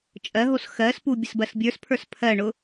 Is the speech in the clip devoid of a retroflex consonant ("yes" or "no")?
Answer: no